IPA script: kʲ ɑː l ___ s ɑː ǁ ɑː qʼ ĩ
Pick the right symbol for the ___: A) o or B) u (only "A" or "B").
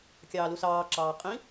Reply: B